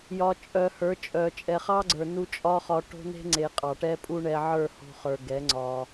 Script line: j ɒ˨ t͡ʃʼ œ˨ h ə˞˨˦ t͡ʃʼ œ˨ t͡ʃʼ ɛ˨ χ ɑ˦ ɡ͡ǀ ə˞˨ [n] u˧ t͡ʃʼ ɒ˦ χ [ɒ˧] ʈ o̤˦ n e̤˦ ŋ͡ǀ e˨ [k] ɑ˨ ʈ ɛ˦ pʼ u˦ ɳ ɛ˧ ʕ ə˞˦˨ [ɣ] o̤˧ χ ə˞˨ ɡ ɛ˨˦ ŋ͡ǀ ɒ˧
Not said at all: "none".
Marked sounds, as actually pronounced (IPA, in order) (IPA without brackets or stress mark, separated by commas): n, ɒ˧, qʼ, h